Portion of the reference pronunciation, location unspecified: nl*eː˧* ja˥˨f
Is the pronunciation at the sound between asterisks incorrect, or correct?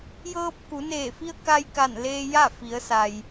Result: correct